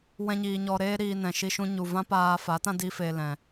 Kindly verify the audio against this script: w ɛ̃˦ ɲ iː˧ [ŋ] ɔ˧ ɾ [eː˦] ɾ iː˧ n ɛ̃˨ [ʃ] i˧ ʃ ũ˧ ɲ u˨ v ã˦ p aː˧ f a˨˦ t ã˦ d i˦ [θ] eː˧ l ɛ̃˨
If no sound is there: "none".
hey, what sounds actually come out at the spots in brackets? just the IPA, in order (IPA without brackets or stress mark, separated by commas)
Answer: ɲ, eː˦, ʃ, f